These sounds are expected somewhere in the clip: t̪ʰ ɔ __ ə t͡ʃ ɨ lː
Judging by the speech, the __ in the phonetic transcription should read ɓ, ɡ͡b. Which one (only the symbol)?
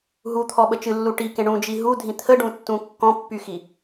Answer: ɓ